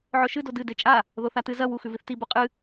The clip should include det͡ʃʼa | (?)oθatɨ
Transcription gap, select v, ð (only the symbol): ð